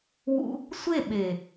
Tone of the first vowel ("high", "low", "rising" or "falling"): high